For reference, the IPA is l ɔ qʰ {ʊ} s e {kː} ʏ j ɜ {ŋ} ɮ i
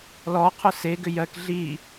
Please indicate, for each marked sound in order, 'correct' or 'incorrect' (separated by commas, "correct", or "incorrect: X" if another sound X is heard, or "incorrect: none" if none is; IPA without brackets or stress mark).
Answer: correct, incorrect: ɡ, incorrect: k